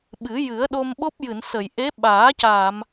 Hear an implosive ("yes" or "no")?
yes